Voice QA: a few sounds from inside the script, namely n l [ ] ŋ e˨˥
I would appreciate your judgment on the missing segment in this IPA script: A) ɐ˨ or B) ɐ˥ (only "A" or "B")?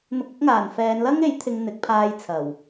B